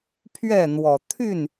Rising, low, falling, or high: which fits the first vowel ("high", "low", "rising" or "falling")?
falling